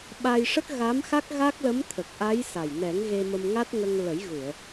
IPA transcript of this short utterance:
ɓa˧jʂə˦˥k̚ɣa˧˥m xa˦˥k̚ɣa˦˥k̚lə˧˥m t̪ʰə˨˩k̚ʔa˧˥j sa˨˩j nɛ˨˩˦ŋɣe˧mə˧m ŋa˦˥t̚ŋə˧ŋlə˨˩˦jɣu˨˩˨ə̯

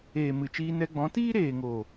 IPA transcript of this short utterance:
eː˨ mɨ˨t͡ʃiː˧nɛ˧ɡ͡bɔ̃˨˦ tiː˦ɾeː˨ŋoː˨

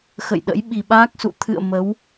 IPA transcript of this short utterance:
xə̰˧˨jɗə̰˧˥j ɓi˨˩ɓaː˦˥k̚sṵ˧˨ t̪ʰɨ̰˧˨ə̯ mə˨˦w

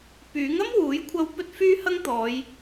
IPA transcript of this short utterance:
pyː˨˥ŋɐ˥mwuː˨˥jkʷʰɐ˧w pɵ˥t̚fyː˥hɐ˥ŋt̪ɔː˨˧j

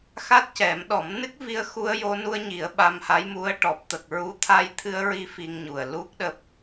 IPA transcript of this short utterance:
xa˦˥t̚cɛ˨˩˦mɗɔ˨˩˦m nɨ˦˥k̚vi˧ə̯xu˧ə̯ jo˧nu˧ə̯ɲi˨˩˦ə̯ ɓa˧mha˧˥jmu˧˥ə̯ ʈɔ˨˩p̚t̪ə˨˩k̚ɹu˧˥ t̪ʰa˧jt̪ʰɨ˧ə̯ɹi˧˥ fi˧ŋɲu˨˩ə̯lu˦˥k̚ ɗəː˦˥p̚

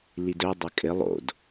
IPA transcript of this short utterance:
lidœ dˤɐkʼɪ lˠo̰d

